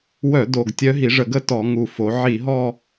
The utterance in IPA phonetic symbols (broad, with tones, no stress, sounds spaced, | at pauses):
w œ˧˩˧ d o˨˩ ɡ tʲ œ˧˥ ɦ i˩˧ ʐ ə˧˩˧ ɡ ə˥˧ t ɔ˧˩˧ ŋ u˨˩ f o˩˧ ʕ i˧˩˧ ɦ ɔ˥˧